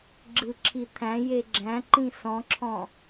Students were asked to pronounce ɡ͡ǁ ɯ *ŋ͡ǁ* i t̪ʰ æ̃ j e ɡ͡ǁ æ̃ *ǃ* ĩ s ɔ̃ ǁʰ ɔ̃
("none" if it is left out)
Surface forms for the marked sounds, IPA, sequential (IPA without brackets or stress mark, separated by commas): ǁʰ, ǃ